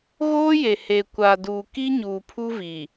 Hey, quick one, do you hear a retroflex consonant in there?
no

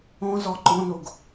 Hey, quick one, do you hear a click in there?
yes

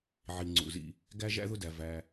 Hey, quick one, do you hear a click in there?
yes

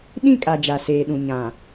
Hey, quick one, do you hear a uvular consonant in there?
no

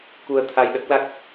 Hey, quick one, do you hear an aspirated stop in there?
yes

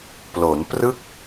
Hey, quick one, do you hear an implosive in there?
no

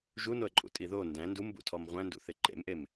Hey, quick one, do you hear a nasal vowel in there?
yes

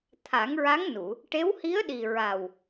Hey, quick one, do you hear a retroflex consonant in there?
yes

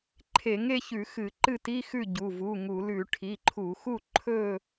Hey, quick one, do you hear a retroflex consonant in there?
yes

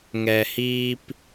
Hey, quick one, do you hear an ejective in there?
no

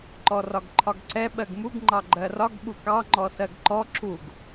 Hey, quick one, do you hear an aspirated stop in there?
yes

